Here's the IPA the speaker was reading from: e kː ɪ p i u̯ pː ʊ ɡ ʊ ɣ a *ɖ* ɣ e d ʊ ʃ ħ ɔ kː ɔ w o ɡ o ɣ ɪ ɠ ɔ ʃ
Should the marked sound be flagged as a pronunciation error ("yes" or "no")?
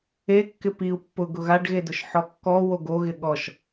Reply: no